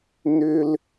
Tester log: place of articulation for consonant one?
alveolar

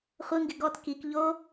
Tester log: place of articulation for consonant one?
uvular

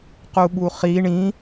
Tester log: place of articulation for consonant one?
uvular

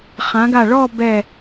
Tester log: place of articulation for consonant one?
uvular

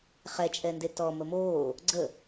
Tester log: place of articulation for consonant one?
uvular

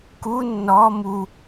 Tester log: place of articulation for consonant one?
velar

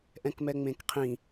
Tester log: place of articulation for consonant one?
glottal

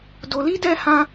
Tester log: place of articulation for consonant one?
alveolar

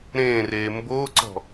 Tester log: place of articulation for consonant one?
alveolar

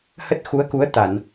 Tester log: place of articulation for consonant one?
glottal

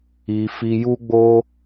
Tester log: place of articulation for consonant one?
labial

